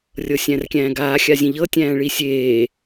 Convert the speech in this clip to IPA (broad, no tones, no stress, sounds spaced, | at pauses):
rʲ ɤ sʲ æ̃ r kʲ æ̃ː ɡ aː xʲ a zʲ ẽ ʎ ɤ tʲ æ̃ː ɭ i sʲ eː